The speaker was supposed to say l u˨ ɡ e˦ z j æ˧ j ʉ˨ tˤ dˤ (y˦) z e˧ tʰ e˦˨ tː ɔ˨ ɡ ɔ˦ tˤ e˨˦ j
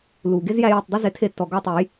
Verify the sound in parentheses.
correct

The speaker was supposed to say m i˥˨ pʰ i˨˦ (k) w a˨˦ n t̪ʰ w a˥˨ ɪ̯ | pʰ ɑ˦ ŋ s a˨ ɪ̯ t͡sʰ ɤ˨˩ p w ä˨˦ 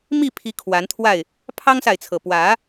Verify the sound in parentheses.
incorrect: kʰ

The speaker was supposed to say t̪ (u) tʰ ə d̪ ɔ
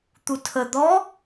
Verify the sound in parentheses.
correct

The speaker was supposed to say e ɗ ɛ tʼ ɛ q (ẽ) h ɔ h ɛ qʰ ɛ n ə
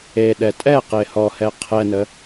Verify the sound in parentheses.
incorrect: e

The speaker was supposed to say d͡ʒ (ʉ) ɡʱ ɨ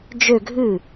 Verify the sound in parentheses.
incorrect: ø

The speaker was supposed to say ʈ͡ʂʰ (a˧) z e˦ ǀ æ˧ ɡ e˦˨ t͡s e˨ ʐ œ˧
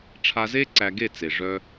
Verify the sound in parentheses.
correct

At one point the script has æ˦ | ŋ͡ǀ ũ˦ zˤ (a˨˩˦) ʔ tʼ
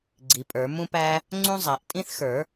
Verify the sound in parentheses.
correct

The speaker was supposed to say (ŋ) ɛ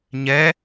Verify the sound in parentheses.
incorrect: ɲ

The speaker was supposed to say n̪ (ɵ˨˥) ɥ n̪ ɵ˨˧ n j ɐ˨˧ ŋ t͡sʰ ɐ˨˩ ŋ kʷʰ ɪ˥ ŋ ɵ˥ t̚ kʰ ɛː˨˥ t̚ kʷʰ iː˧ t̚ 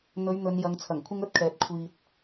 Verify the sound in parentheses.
incorrect: ɵ˨˧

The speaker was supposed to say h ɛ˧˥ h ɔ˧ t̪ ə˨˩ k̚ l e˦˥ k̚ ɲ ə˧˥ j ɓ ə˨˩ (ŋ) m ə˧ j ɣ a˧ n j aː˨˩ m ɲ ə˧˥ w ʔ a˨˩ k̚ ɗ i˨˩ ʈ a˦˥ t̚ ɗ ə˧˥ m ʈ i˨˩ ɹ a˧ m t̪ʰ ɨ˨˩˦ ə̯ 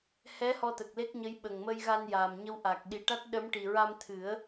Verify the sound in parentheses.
correct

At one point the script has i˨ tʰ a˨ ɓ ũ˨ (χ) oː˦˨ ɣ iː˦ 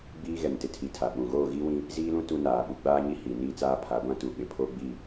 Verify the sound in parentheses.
incorrect: ɣ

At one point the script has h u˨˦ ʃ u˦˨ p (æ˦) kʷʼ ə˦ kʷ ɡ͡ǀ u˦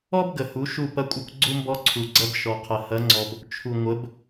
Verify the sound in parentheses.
incorrect: ɐ˦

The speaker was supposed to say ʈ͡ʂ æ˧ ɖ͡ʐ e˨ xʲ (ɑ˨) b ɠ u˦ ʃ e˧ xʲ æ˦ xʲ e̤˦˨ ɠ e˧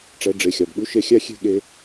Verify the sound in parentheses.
correct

